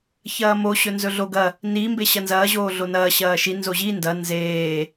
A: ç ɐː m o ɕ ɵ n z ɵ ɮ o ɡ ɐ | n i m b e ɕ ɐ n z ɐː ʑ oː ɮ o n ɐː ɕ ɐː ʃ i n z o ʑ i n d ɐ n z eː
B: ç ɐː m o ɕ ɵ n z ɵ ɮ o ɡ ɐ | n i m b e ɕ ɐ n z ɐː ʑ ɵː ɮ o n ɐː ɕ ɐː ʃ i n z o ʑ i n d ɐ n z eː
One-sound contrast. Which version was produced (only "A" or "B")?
A